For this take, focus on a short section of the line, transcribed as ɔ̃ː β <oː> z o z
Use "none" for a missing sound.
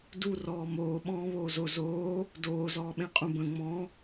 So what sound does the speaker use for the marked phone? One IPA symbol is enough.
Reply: oː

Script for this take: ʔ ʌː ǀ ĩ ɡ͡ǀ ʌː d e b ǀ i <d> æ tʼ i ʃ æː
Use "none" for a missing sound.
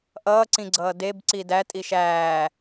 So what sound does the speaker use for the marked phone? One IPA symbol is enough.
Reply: d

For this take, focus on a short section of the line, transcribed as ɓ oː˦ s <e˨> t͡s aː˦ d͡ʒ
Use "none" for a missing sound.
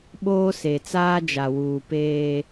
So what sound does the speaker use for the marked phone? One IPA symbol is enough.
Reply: e˨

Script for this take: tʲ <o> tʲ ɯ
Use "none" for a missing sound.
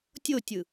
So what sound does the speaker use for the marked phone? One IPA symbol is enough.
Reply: o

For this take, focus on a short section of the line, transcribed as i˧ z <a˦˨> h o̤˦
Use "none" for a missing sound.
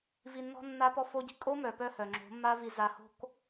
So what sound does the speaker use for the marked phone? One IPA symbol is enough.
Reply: a˧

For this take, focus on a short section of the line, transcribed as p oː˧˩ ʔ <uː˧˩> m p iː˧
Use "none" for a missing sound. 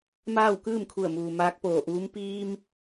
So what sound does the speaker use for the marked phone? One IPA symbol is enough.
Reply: uː˧˥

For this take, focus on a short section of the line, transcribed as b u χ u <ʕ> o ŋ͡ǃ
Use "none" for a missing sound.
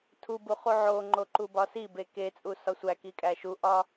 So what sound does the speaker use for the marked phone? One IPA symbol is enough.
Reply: ʕ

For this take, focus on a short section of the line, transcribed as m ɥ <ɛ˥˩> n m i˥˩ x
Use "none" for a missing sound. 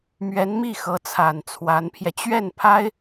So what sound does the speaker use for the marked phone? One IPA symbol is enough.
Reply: ɛ˧˥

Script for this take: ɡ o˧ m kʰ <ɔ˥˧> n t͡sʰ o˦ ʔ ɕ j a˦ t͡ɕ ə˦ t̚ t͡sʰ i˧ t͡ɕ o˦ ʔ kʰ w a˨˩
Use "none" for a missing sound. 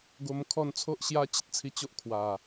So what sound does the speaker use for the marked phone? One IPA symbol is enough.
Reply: ɔ˥˧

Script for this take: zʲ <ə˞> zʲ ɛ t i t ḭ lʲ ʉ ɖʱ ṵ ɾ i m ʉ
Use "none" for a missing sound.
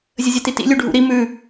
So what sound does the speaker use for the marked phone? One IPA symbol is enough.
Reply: ə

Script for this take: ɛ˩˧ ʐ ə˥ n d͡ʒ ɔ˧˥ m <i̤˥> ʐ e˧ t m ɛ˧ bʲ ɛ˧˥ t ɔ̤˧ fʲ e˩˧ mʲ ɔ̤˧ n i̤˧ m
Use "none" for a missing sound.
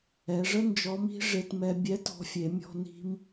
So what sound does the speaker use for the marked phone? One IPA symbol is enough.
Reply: i̤˥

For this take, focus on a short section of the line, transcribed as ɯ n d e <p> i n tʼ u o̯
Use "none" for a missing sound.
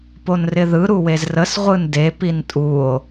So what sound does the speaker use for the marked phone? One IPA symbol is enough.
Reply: p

